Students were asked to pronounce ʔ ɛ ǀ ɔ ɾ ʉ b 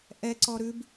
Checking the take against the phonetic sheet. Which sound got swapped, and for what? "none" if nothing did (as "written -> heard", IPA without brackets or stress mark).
none